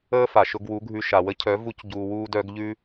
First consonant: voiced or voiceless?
voiceless